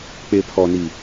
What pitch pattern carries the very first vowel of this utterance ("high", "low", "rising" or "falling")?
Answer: low